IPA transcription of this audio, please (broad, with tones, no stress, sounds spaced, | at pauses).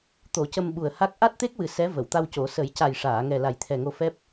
t̪ o˨˩˦ c ə˧ m ɓ u˨˩ ə̯ h a˦˥ k̚ ʔ a˦˥ t̚ t̪ e˦˥ k̚ w ɨ˨˩ s ɛ˧˥ v ə˨˩˨ w t̪ a˧ w c o˨˩˦ s ə˨˩˦ j c a˨˩ j ʂ aː˨˩˨ ŋ ɛ˨˩ l a˨˩ j t̪ʰ ɛ˨˩ ŋ o˧ f ɛ˦˥ p̚